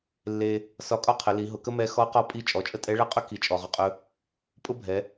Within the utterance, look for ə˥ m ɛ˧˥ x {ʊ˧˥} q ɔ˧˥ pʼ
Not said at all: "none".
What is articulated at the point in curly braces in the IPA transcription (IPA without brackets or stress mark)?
ɔ˧˥